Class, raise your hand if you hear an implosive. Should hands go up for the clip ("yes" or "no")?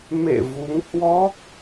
no